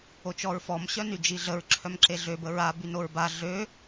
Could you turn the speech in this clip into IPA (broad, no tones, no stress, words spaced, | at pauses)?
ot͡ʃɔɹfɔm ɕœnyd͡ʒiɮəɹ ǁʰœmǁeɮø bəɹa bynoɹba ɮø